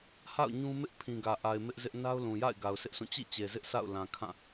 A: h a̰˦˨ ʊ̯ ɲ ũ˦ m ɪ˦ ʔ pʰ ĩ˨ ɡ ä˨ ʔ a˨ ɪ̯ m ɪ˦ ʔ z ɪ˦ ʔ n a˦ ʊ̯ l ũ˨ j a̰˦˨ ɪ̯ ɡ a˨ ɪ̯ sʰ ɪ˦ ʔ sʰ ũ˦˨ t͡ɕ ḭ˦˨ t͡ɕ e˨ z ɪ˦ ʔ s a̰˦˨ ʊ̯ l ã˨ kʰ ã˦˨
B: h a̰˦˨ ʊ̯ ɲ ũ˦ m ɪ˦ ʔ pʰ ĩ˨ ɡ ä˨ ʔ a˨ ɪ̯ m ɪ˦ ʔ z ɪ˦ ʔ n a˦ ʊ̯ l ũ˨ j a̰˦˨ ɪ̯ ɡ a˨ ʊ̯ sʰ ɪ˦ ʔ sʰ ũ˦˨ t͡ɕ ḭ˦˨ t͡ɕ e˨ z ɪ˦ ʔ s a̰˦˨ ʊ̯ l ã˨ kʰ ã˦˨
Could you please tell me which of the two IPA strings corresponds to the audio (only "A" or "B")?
B